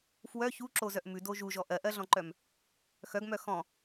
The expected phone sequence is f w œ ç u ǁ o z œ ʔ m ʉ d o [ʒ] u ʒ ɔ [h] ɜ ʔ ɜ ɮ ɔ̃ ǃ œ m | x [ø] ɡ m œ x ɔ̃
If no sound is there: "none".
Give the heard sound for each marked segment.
ʒ, ʔ, œ

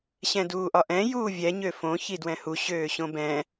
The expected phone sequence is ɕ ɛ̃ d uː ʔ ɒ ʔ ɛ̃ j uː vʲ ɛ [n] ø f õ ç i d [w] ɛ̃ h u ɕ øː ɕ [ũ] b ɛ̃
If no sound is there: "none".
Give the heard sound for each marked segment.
ɲ, w, õ

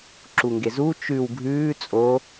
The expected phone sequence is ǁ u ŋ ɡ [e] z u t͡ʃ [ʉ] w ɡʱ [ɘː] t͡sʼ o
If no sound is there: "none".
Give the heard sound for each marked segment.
e, ʉ, ʉː

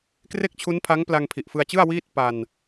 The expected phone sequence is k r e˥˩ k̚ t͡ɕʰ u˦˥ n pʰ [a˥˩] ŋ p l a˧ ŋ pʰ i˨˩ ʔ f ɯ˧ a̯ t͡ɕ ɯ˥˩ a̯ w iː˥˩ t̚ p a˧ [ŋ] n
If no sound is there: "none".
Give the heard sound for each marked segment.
a˦˥, none

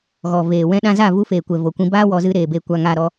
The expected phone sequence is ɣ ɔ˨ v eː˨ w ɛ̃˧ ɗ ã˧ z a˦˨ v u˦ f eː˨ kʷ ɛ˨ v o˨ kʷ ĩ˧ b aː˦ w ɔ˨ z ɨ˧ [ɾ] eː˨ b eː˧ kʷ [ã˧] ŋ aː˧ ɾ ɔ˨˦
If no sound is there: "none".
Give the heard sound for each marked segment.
ɾ, a˧

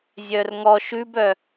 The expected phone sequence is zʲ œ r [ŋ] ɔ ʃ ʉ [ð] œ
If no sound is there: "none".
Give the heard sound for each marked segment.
ŋ, b

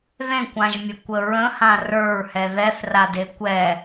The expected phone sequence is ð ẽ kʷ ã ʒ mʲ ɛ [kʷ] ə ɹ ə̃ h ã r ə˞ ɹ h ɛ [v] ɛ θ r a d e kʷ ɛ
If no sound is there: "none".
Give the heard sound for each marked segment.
kʷ, ð

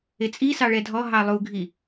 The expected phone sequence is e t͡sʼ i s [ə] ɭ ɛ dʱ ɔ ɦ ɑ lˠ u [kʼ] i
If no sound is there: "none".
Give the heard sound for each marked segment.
ɑ, ɡʱ

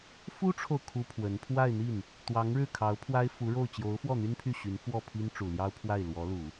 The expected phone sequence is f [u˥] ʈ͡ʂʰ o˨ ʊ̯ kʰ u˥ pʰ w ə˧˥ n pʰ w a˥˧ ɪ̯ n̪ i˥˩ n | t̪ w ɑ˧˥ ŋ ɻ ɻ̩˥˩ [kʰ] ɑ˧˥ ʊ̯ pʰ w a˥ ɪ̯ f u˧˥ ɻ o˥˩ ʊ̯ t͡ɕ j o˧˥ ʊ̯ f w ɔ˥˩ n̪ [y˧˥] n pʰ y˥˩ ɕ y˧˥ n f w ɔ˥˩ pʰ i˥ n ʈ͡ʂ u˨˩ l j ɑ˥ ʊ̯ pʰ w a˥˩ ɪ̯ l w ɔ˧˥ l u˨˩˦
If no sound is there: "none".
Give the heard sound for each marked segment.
u˥, kʰ, y˥

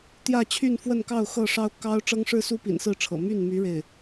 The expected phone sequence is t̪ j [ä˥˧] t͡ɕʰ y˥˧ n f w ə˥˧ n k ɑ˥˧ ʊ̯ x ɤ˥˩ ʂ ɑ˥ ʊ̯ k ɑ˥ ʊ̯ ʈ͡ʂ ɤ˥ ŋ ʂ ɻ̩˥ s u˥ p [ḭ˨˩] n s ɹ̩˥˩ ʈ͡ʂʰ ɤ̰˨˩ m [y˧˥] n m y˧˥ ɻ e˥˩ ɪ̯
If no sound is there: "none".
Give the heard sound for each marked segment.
ä˥˧, ḭ˨˩, y˥˩

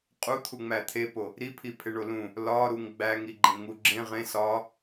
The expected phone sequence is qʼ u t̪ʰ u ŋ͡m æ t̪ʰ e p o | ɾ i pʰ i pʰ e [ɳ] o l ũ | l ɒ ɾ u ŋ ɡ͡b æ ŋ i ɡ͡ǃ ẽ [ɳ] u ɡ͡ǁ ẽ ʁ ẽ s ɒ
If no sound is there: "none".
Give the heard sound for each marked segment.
ɳ, ŋ

